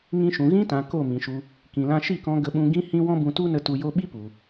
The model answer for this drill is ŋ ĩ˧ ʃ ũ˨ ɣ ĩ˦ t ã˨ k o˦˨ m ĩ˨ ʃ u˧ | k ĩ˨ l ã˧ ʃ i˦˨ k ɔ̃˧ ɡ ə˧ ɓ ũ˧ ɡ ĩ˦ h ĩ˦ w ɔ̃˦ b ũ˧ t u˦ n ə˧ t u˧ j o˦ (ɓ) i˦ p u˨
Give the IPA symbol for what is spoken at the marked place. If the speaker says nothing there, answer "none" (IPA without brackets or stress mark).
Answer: ɓ